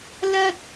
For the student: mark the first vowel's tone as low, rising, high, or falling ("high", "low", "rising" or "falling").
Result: high